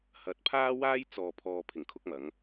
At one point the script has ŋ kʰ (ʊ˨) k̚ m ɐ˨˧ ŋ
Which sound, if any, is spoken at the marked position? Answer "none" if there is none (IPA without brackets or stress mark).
ʊ˧